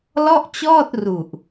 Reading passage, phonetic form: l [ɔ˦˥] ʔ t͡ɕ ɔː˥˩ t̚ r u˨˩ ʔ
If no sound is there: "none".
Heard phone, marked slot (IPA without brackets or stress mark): ɔ˥˩